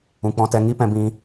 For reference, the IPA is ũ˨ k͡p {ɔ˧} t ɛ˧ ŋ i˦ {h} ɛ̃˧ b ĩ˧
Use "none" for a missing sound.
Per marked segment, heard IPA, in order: ɔ̃˧, p

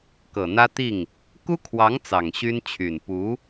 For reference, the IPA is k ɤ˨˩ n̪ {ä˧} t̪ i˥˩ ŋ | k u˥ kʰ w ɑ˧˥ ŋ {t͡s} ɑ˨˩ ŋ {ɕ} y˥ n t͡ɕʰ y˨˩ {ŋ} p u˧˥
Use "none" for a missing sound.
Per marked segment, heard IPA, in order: ä˥, t͡s, ɕ, n

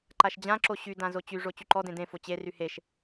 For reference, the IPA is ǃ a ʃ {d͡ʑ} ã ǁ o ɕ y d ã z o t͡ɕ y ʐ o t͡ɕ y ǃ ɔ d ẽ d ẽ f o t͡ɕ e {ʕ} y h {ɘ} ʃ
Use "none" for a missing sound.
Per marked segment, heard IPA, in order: d͡ʑ, r, e

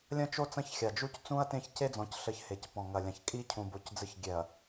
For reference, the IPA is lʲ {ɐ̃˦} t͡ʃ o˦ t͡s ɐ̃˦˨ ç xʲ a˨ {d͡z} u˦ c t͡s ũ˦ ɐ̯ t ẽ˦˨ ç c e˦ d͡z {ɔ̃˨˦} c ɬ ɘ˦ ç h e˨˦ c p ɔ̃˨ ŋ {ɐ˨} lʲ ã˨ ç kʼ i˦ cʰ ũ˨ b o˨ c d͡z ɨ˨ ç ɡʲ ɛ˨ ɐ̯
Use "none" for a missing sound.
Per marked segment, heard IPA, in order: ɐ̃˦, d͡ʒ, ɔ̃˨˦, ɐ˨

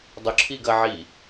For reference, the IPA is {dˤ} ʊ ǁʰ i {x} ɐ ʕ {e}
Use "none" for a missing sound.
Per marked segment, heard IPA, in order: dˤ, ɡ, i

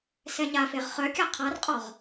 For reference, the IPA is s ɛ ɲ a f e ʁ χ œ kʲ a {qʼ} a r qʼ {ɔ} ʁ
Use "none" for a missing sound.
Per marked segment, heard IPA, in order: qʰ, ɔ

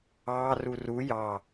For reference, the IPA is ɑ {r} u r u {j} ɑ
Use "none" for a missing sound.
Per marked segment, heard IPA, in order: r, j

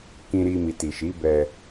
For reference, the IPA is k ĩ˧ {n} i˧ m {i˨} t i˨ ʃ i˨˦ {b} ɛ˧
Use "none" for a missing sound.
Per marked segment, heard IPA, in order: ɾ, i˨, b

